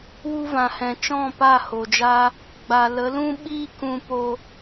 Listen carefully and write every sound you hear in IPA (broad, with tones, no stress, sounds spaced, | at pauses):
w u˧ v ã˨ h ɛ̃˨ t͡ʃ ɔ̃˦˨ p a˦˨ h o˨ d͡ʒ aː˦ | ɡ͡b a˨ l ə˨˦ l ũ˦ ɓ iː˦ k ũ˧ p o˧